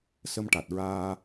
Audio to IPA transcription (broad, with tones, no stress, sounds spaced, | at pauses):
s ə˧ m ʈ a˨˩ t̚ ɹ aː˧